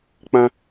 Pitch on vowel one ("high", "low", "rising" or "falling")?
high